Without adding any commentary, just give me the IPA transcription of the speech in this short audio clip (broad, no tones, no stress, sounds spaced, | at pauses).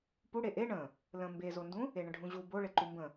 p u ɽ e ʔ e ɳ ə̃ | l ə̃ m b e z o n d ũ | e ɳ ə̃ ɖʱ ũ ʑ u b o ɭ e ǃ u m b ə̃